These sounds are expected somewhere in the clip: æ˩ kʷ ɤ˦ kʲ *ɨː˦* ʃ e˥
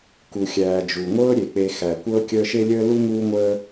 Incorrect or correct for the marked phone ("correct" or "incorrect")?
incorrect